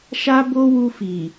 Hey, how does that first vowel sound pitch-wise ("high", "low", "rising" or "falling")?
high